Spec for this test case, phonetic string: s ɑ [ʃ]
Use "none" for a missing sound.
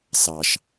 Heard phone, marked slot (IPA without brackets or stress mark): ʃ